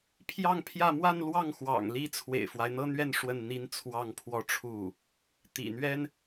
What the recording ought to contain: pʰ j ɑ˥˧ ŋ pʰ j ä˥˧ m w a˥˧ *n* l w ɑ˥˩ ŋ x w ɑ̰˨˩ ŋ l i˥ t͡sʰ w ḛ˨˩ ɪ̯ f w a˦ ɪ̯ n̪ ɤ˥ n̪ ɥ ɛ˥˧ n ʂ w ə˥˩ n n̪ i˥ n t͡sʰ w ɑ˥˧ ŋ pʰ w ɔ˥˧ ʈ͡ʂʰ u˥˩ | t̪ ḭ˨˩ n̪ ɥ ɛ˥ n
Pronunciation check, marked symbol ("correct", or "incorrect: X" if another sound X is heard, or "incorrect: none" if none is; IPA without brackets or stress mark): correct